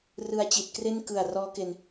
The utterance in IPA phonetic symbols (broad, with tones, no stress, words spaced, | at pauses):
rɯ˧a̯t͡ɕi˨˩t̚kre˥˩n kɯ˨˩a̯ rɔː˦˥ke˧n